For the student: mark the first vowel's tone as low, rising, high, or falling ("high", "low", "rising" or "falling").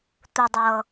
low